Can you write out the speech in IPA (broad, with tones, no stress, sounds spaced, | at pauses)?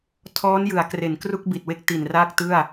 tʰ ɔː˦˥ n j ɯ˩˦ a̯ k r e˩˦ n k r u˥˩ k̚ b i˨˩ t̚ w e˦˥ k̚ t i˨˩ n r aː˥˩ k̚ t ɯ˥˩ a̯